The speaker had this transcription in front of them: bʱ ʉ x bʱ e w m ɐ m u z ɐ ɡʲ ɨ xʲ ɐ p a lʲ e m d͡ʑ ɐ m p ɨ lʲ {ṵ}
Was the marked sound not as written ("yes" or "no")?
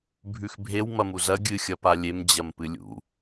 no